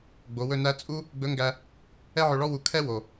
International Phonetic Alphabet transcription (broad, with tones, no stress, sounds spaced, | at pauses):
ɡ͡b o˩˧ w ɵ˧ n æ˧˥ t͡sʼ u˥ | ɡ͡b ɵ˧˥ ŋ ɡ æ˧ | ɛ˥ ʕ ɵ˧ ɭ ɔ˥ w u˧ kʰ ɛ˥ w o˩